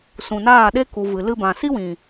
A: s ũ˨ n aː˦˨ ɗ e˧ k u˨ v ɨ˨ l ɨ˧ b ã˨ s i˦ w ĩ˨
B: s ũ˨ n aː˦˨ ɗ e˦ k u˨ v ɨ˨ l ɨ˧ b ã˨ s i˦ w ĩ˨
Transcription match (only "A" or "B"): B